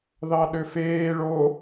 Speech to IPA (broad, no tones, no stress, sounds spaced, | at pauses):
ð ɑ ɗ ø f eː ɭ o